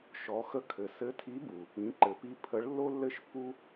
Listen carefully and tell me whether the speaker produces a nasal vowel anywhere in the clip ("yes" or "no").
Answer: yes